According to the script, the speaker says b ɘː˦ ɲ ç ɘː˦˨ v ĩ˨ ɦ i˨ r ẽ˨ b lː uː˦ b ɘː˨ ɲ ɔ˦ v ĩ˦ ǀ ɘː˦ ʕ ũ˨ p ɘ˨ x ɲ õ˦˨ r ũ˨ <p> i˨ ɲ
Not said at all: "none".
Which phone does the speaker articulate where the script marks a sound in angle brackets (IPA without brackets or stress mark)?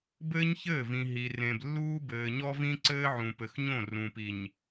p